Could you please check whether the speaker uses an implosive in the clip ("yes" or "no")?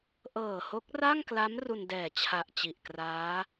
no